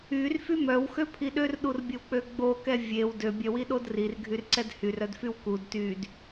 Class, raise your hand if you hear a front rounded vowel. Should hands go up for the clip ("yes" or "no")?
yes